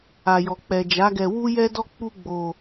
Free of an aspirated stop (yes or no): yes